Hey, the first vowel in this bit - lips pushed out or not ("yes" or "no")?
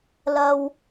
no